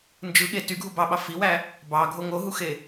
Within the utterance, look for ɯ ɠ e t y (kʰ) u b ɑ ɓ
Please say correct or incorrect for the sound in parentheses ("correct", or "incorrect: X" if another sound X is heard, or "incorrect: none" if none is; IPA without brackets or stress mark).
incorrect: ɡʱ